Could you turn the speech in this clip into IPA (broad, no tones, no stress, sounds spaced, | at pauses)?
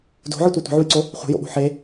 d o̤ ʕ ɯ tʷ ə˞ tʷ ə̤ ʕ u j ǀ o | χʷ e̤ j o̰ ɓ o̤ ħ e